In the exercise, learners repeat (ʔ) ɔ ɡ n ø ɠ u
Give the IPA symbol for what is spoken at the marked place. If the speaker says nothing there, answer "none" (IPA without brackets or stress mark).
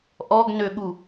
ʔ